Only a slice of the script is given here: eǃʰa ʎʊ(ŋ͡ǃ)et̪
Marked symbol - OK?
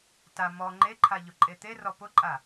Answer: no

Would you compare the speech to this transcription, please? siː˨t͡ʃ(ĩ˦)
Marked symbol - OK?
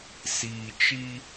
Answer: no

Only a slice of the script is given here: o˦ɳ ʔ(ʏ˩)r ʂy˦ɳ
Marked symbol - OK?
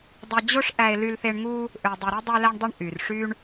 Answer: no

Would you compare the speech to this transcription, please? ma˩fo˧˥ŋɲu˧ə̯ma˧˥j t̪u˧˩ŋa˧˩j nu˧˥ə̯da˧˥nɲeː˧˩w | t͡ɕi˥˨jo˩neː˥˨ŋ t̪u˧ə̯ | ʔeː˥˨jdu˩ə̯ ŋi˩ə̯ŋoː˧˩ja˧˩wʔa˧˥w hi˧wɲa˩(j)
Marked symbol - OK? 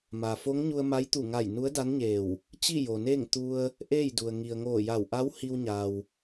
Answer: no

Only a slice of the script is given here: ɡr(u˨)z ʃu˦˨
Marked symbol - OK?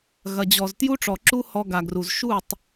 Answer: yes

